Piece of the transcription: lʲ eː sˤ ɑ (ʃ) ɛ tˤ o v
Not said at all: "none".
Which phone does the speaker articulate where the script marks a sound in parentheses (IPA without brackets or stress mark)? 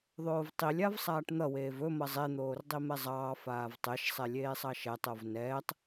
ʃ